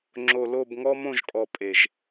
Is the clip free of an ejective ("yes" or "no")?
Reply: no